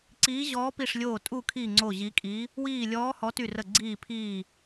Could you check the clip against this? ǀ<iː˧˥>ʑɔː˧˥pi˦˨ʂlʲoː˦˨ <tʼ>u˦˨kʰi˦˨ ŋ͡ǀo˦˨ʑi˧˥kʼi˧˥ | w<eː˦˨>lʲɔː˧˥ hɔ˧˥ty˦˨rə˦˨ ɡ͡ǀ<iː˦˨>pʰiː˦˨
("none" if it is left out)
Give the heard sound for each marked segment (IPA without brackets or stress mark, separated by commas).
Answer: iː˧˥, tʼ, iː˦˨, iː˦˨